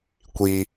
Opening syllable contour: high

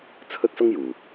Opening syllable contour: high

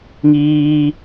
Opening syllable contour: high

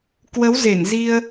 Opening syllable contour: rising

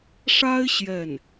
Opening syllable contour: high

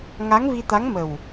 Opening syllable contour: rising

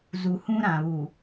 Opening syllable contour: low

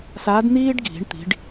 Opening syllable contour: rising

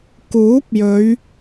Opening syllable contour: rising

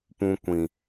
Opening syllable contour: low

